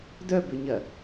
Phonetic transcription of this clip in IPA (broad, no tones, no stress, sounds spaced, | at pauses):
d œ b ʏ ɲ ɐ